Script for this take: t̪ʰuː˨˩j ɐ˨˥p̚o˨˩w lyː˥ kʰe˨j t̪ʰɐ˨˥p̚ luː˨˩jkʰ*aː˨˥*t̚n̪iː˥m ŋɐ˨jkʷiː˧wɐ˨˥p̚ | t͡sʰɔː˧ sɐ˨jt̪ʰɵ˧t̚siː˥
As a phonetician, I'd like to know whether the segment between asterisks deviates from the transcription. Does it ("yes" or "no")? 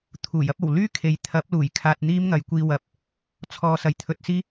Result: yes